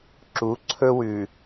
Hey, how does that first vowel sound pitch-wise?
rising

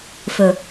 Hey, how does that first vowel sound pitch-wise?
low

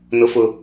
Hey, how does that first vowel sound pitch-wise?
high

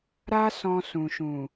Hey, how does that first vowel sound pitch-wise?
high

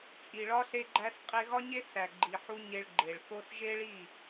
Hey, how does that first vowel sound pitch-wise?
low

